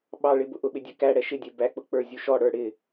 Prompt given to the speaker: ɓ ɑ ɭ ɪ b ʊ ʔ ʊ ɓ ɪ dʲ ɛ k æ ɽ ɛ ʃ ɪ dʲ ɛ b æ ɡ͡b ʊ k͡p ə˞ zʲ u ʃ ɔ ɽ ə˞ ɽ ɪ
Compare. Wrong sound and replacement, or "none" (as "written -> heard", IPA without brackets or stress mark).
ɡ͡b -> k͡p